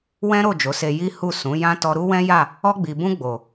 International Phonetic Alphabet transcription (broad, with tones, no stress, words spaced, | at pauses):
wɛ̃˦ɾo˦˨d͡ʒo˨˦se˧ ji˦hu˦˨ sũ˨˦jã˦ tɔ˧ɾu˦wɛ̃˦ja˦˨ | ɔ˧ɡ͡bi˨bũ˧ ɡ͡bo˨